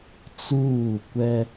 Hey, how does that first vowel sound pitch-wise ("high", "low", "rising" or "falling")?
falling